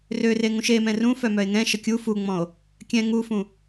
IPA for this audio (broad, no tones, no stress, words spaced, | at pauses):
røre ŋũʃemɛ̃ rũ fœmœe̯ŋɛ̃ʃə kʲu fuŋ͡mɔ̃o̯ | kʲɛ̃ ŋufũ